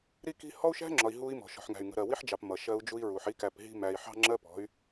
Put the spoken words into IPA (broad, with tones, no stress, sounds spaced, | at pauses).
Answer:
ɾ i˦ k i̤˦ h ɔ˦ u̯ ʃ æ̤˦ ŋ͡ǁ ɒ˨ i̯ ɦ u˦ i̯ m ɔ̤˨ ʃ ɔ̤˨ ħ ŋ æ̤˨ y̯ ŋ ə̤˨ ɾ ɜ˨ w i˦ ħ d͡ʒ ɑ˨ p m ʌ˨ ʃ ɜ˦ u̯ d͡ʒ u˦ i̯ ɹ u˨ ħ i˦ k æ˨ p ɦ i̤˦ m æ˨ i̯ ħ ɑ̤˦ ŋ͡ǁ ɜ˦ p ɔ̤˨˦ y̯